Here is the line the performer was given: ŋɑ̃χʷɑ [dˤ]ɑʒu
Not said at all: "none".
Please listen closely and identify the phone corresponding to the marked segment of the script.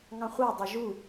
dˤ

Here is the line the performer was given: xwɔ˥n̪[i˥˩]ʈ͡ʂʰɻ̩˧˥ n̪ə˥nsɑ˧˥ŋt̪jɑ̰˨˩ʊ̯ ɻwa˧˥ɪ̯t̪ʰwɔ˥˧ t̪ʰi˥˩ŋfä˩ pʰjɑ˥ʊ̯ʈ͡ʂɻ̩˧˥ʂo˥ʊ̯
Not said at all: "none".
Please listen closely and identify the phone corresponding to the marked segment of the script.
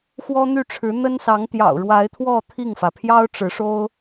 y˥˩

